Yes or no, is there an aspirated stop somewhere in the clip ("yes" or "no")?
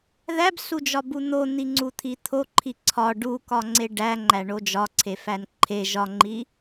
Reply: yes